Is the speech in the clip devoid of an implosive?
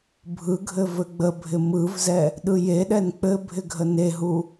no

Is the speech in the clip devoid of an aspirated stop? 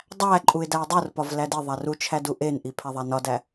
no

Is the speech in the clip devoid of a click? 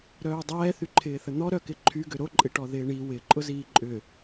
no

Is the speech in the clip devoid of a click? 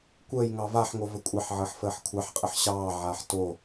yes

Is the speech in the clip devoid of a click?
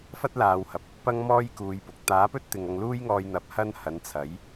yes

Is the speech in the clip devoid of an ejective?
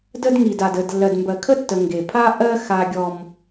yes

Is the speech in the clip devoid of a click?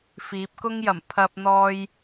yes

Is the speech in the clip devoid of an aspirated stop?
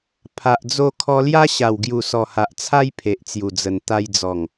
no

